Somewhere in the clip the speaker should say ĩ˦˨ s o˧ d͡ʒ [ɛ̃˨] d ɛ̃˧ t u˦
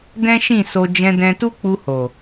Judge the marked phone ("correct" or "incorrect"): incorrect